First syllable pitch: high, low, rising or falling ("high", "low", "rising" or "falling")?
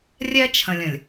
high